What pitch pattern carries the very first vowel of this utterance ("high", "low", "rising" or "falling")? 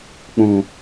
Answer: low